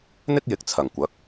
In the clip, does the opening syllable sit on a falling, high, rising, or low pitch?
high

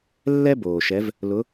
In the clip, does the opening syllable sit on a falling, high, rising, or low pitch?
high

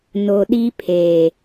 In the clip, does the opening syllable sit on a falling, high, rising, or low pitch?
low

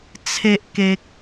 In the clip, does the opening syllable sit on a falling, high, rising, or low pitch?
low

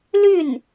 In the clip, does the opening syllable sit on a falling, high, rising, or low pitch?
falling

